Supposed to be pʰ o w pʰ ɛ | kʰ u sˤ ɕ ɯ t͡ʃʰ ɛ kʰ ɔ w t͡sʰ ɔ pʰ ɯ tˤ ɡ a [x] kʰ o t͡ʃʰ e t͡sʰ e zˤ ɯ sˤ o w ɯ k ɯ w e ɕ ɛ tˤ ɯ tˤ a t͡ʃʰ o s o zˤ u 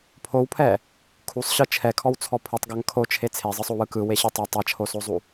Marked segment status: incorrect: ŋ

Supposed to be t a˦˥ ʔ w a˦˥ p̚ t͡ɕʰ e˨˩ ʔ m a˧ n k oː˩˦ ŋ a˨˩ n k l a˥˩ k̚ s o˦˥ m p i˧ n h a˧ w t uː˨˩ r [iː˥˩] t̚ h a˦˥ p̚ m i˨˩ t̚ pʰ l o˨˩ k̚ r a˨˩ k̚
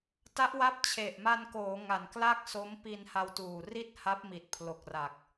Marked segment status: incorrect: i˥˩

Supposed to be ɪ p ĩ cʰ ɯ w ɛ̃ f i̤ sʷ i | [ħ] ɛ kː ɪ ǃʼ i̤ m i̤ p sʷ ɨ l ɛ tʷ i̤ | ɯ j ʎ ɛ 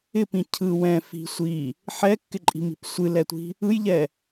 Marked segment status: correct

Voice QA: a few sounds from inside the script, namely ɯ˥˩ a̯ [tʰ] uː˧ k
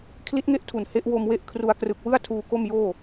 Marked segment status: correct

